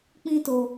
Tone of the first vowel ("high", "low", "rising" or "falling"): high